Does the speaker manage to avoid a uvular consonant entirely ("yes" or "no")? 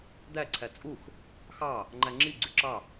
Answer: yes